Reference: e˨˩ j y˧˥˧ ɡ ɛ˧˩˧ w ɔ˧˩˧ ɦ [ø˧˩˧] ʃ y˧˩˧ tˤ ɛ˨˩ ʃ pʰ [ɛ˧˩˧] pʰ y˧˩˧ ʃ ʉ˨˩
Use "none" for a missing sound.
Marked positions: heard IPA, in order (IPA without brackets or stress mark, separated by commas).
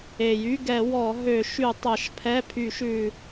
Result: ø˧˩˧, ɛ˧˥˧